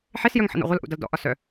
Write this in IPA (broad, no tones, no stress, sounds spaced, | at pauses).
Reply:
ħ e s j œ ŋ ħ ə̰ n ɔ̰ ʁʷ ʌ l ʔ ṵ d ʌ l d ɔ̰ ʔ ɒ s œ